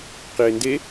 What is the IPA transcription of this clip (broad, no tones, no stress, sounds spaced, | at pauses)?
q i e̯ n d e